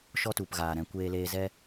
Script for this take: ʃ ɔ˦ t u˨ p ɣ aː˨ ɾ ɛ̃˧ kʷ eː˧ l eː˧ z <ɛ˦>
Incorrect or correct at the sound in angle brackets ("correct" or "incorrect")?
correct